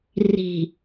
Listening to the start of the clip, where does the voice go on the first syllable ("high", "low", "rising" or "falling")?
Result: low